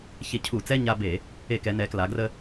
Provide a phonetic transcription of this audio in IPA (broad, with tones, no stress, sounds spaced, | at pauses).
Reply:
ç e˧˩˧ cʰ u˧˩˧ t͡s ɛ˧˥˧ ɲ a˧ b e˧˩˧ | e˧˩˧ k ɛ˩˧ n ɛ˩˧ k l a˩˧ ɡ r ə˧